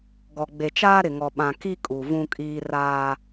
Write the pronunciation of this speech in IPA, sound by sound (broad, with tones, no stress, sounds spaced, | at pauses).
ɡ ɔ˨ ɡ͡b e˨ t͡ʃ aː˦ ɾ ɪ˨ ŋ ɔ˨ ɓ ã˨ k i˦ kʼ u˨ v ũ˦ kʼ iː˦ r aː˦